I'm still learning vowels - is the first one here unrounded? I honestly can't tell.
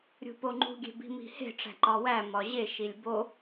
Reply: no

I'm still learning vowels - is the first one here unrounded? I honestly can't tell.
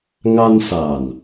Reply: yes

